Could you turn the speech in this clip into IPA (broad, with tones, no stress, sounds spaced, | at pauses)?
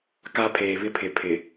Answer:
k a˦ pʰ eː˨ β ɪ˦ pʰ ɪ˨ pʰ ɪ˨